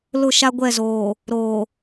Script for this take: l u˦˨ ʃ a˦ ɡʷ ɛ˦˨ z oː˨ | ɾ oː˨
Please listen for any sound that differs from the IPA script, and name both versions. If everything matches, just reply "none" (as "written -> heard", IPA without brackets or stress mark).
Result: u˦˨ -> ʊ˦˨